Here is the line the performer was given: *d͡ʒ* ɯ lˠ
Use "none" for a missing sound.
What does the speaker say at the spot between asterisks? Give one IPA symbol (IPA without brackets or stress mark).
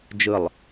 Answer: d͡ʒ